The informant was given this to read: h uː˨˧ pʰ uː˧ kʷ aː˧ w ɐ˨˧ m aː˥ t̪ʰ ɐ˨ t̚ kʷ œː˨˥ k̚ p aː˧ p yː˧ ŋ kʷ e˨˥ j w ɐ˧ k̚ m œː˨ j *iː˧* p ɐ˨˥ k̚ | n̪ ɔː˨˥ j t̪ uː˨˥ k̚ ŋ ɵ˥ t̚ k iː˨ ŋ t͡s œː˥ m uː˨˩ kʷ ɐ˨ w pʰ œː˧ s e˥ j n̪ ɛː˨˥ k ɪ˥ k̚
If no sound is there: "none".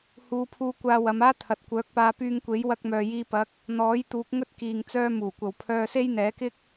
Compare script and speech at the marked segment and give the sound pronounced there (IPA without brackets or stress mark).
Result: iː˧